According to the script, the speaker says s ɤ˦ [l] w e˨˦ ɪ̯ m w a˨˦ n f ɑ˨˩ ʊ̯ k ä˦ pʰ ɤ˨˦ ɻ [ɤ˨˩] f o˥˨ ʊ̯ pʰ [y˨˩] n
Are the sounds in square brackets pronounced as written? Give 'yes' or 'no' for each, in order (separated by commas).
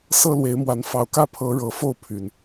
yes, yes, yes